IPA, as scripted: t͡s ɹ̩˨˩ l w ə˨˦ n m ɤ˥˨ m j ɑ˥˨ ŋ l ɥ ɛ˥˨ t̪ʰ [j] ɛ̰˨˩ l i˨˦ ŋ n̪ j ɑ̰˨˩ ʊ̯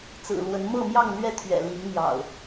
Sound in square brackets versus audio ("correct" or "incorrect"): incorrect